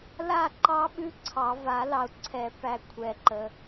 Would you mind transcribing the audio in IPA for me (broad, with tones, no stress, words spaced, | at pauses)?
la˥˨ǃɑ˦˥ɓʉ˦˥ ǀʰɑ˨˩˦ va˨˩˦lɑ˨ʊ̯ǀʰɛ˨˩˦pæ˨ kʷʰɛ˨ǃə˨